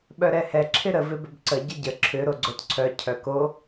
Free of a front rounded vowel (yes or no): no